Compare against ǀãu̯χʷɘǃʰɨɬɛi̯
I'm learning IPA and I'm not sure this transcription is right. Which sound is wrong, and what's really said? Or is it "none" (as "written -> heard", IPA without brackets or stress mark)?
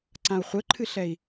none